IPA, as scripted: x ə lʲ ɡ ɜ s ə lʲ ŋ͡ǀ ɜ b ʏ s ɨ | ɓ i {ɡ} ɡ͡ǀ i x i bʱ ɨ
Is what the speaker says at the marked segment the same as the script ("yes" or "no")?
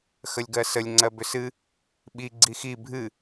no